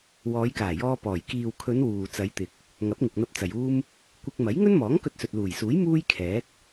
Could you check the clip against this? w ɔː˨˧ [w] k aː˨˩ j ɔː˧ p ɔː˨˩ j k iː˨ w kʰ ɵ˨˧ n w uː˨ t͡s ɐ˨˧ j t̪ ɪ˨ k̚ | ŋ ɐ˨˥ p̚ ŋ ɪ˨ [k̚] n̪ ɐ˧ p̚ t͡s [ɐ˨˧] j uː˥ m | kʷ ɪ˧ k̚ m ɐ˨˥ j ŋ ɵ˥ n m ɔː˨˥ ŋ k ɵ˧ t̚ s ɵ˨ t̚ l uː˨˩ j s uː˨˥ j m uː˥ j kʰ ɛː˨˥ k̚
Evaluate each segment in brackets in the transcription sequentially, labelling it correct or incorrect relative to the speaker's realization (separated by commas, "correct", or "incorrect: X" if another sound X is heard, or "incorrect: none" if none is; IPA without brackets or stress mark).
incorrect: j, correct, incorrect: ɐ˨